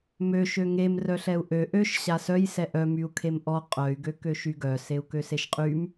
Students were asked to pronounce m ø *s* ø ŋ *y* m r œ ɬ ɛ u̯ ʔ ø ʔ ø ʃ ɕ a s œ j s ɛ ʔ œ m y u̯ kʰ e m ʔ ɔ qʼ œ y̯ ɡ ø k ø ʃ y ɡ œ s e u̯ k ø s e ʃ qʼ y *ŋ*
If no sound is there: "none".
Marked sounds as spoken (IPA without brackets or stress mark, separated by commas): ʃ, e, m